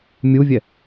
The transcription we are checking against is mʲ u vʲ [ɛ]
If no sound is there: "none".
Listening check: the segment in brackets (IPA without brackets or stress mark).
ɛ